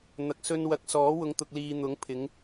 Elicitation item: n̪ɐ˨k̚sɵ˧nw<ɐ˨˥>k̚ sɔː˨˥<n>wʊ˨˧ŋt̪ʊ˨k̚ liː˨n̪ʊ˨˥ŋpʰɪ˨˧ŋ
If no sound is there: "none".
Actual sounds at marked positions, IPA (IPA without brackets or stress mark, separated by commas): ɐ˨˥, none